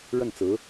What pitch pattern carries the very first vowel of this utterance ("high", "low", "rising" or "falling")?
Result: falling